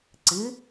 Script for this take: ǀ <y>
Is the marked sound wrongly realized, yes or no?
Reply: yes